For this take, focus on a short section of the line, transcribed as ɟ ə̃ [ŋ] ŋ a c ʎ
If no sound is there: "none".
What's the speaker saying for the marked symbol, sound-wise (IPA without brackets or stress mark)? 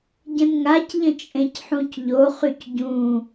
n